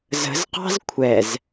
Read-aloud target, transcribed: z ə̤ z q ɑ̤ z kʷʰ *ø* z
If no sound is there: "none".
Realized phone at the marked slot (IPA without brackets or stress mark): ɛ